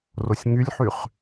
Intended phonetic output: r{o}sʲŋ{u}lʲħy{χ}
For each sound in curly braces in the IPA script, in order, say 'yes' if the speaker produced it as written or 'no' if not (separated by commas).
yes, no, yes